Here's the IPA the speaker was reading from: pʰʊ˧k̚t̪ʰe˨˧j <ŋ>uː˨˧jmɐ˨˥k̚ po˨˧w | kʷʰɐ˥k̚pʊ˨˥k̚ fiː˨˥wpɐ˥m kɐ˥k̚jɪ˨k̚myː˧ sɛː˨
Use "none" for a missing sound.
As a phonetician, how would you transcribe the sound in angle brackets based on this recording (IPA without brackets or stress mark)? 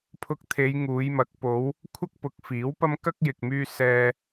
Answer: ŋ